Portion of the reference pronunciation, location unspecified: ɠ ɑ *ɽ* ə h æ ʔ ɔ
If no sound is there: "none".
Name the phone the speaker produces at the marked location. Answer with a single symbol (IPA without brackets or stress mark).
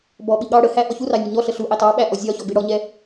ɽ